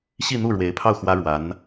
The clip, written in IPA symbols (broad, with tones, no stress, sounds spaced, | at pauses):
ɕ i˥˧ n̪ u˥˩ ɻ w e˧˥ ɪ̯ pʰ ɑ˥˩ ʊ̯ x w ä˥ ɻ w a˧˥ n